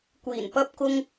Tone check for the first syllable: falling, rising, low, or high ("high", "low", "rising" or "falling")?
low